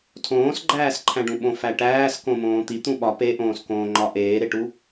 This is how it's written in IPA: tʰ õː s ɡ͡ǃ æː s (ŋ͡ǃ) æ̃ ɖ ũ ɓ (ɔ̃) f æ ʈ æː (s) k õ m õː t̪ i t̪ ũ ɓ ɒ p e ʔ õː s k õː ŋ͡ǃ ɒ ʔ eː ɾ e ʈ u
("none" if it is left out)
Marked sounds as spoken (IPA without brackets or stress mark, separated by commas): ǃʰ, õ, s